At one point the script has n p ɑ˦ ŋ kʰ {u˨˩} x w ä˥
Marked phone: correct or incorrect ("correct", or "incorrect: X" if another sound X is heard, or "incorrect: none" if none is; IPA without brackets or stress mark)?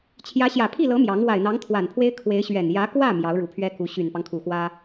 correct